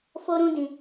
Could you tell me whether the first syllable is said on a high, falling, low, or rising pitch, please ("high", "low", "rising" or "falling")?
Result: high